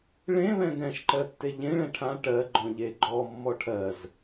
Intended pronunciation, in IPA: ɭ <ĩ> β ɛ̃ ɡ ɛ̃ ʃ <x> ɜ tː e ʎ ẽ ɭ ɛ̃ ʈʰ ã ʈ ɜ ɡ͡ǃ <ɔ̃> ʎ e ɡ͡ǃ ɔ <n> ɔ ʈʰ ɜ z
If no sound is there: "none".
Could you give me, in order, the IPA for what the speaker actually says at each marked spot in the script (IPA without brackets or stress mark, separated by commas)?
ẽ, ǃ, ɔ̃, mː